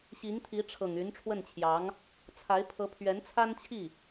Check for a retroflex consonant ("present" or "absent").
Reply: present